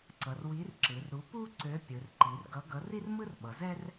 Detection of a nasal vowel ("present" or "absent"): absent